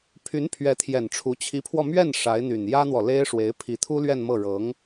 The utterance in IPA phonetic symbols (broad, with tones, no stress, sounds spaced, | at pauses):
pʰ y˧˥ n pʰ ɥ ɛ˧˥ t̪ʰ j ɛ˨˩ n ʈ͡ʂʰ u˧˥ t͡ɕʰ i˧˥ pʰ w ɔ˧ m ɥ ɛ˥˩ n ʂ a˧˥ ɪ̯ n̪ y˨˩ n j ä˥ n̪ w ɔ˨ l e˥ ɪ̯ ʂ w e˧˥ ɪ̯ pʰ i˧˥ t̪ʰ u˥ l ɥ ɛ˥˧ n m ɤ˥˩ ɻ ɤ˧˥ ŋ